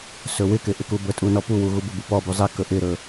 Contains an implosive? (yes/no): no